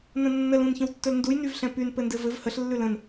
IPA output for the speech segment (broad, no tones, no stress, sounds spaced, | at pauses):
n ə̃ nː ə l ũ n ç ə̃ w tː ɵ l n d u j n y v ɬ ɛ̃ p y n p ɘ n d ɘ v ɘ v h ə ɬ lː ʉ l ə̃ n